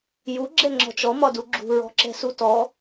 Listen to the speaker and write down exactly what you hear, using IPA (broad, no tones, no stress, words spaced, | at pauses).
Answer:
ju ɡ͡ǁɛŋ͡ǁɔ̤t͡ʃɔ mɒduɡ͡ǁṳ ɹɔ̤ǁɛ̤sutɔ